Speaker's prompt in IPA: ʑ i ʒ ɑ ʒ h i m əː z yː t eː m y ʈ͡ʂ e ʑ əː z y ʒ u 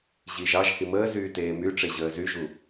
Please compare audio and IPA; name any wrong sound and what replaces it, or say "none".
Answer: none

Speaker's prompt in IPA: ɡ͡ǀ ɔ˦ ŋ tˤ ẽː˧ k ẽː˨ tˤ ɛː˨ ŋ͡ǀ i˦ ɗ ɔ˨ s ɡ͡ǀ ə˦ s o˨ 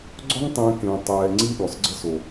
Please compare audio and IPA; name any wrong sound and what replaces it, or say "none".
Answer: none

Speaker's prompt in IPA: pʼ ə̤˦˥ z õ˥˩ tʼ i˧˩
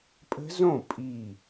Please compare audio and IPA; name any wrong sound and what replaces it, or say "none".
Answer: tʼ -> pʼ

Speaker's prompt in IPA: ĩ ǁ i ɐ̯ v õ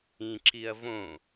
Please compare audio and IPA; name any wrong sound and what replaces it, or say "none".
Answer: none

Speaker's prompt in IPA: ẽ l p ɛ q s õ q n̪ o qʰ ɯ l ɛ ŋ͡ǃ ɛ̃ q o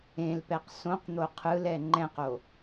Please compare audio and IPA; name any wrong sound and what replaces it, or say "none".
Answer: none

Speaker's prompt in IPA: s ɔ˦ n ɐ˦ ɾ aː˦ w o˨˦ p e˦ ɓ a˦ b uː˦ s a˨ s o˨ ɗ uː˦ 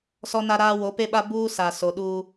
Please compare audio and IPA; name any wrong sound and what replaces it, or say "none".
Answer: ɐ˦ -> a˦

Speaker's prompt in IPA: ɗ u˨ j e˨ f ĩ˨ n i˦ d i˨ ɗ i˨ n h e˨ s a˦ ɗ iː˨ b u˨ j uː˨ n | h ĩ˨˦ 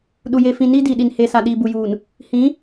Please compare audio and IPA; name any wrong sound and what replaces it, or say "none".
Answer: a˦ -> a˨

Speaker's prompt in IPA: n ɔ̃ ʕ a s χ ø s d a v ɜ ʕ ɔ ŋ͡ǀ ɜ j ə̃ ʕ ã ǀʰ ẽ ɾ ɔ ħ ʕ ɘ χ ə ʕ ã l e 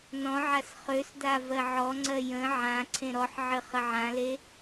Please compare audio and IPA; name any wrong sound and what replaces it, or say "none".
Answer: none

